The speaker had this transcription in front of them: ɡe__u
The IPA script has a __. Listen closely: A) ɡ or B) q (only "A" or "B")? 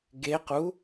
B